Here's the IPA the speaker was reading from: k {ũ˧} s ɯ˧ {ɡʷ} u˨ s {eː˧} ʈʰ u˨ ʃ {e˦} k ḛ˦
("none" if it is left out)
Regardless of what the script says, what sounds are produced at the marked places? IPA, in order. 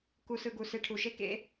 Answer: u˧, ɡ, e˧, e˦

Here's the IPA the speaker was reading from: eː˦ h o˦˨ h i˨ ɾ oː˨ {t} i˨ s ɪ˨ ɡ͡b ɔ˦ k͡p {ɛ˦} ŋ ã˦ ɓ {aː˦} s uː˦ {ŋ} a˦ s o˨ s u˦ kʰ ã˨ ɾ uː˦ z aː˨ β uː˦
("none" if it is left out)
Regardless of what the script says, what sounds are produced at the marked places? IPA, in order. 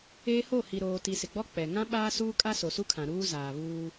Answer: t, ɛ˨, aː˦, kʼ

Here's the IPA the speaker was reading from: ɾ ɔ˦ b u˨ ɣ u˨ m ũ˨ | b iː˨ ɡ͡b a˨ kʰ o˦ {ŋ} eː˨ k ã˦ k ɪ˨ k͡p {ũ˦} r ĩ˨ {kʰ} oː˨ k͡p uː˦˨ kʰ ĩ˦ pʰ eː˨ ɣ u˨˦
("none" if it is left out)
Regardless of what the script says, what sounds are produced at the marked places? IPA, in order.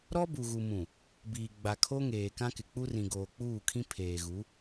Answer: ŋ, u˦, ɡ

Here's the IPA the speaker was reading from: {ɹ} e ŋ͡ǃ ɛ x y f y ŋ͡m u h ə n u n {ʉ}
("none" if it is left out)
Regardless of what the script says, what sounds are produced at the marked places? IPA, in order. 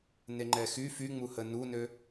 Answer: n, ø

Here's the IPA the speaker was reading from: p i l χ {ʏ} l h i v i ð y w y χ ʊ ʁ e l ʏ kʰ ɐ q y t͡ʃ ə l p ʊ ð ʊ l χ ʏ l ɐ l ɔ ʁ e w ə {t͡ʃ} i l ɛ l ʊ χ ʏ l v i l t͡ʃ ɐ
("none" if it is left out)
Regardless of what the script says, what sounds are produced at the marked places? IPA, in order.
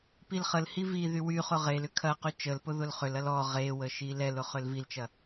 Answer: ə, ʃ

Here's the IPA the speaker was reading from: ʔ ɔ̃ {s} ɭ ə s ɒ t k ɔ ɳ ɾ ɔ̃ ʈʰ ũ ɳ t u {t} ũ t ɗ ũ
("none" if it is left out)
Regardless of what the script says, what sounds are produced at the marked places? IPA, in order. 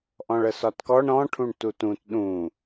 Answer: none, t

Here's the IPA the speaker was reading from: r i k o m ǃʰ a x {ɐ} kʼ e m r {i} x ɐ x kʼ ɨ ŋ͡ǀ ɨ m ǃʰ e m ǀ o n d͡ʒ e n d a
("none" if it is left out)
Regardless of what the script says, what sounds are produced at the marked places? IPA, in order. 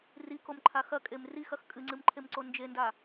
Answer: ɐ, i

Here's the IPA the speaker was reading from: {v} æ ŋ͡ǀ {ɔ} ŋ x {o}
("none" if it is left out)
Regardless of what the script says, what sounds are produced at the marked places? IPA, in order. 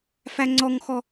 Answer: f, ɔ, ɔ

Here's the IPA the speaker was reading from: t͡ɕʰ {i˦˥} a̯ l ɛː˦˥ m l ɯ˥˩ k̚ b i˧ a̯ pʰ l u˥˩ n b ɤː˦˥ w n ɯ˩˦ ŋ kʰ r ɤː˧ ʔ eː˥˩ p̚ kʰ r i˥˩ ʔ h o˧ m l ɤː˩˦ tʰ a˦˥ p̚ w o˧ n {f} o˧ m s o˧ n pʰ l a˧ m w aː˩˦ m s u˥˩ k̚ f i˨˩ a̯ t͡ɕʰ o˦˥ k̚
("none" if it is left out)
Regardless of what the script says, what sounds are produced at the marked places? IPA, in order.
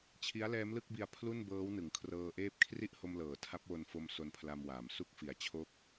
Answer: i˦˥, f

